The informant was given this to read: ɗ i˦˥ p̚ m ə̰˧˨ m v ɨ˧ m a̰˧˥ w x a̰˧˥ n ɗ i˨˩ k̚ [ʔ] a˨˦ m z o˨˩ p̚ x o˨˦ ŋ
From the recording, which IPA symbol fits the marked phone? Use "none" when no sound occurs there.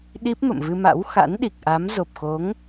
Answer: ʔ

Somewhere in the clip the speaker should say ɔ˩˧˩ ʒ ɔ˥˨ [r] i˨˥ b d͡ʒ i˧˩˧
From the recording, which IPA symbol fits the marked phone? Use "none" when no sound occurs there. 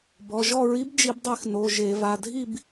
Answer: ɹ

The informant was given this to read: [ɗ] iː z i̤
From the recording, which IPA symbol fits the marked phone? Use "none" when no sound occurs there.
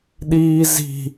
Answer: ɗ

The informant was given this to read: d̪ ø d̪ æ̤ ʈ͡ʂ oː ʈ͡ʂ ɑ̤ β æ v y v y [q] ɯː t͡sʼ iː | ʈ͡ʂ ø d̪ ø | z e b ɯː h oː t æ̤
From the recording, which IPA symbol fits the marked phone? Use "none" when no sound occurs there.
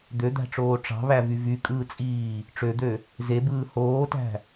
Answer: kʼ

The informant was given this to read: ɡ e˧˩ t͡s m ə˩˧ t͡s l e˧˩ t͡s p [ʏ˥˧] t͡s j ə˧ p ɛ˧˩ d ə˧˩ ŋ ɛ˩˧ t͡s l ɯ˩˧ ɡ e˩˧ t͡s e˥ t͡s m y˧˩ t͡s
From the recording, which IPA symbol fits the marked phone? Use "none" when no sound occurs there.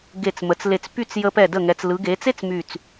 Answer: y˥˧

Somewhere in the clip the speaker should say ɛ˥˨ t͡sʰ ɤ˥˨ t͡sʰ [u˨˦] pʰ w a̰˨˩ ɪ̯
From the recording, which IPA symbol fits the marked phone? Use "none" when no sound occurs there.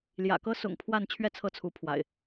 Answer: u˨˦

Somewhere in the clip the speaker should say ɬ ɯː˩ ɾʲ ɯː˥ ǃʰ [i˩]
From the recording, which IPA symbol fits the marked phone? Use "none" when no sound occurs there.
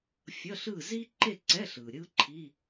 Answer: i˧˥˧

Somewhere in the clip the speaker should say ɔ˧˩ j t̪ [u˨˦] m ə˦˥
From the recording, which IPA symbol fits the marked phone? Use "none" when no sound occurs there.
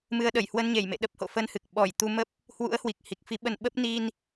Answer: u˧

